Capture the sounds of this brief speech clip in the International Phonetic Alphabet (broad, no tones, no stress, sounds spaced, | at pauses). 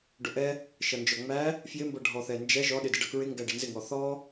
ɖ ʊ ʔ ɛ | ʃ ʌ n d͡ʒ ɔ ŋ͡m æ | f j ɪ m b ʌ ɖʱ ɔ θ ɛ n d͡ʒ ɛ ʒ ɔ ɗ ɪ d ɪ ɖ ʌ k ɹ ɪ ŋ ɡ æ ɖ ɪ n z ɪ ŋ ɔ θ ɔ